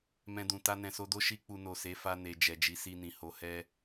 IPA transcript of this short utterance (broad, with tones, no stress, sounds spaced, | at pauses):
m ɛ̃˧ d ũ˨ t a˧ n ɛ̃˨ s o˧ d o˦ ʃ i˦ k͡p u˧ n o˨ s e˨˦ f a˧ n e˨ d͡ʒ ɛ˨ d͡ʒ i˨˦ s i˧ n ĩ˨ h o˧ h ɛ˦